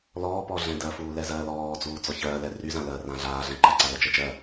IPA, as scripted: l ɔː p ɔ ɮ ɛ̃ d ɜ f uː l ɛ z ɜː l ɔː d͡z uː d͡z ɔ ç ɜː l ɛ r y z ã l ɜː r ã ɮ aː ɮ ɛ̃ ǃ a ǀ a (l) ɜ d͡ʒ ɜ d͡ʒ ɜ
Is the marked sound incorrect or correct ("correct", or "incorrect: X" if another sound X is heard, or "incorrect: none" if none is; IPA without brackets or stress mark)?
correct